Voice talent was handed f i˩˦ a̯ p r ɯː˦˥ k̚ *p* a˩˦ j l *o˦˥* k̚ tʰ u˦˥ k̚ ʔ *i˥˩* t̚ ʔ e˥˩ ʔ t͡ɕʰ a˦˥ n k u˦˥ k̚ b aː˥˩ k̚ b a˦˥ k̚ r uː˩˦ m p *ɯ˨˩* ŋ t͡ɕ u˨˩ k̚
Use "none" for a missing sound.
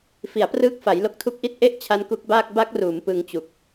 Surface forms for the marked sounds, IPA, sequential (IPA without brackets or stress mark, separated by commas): f, o˦˥, i˥˩, ɯ˧